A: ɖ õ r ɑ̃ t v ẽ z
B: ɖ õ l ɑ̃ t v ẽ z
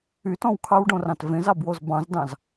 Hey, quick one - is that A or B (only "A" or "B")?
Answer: A